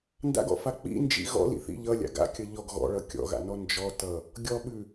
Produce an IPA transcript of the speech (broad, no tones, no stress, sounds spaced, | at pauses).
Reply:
n d a̰ ɡ ɔ̰ f a k͡p ḭ n d͡ʒ ḭ ɣ ɔ̰ l ḭ θ ḭ ʎ ʌ lʲ a̰ ɡ a̰ kʲ ʌ ʎ ɔ ɡ ɣ ɔ̰ ɭ ʌ kʲ ɔ̰ ɣ a̰ n ɔ n d͡ʒ ɔ t ʌ | ɡʲ ɔ ɓ ʉ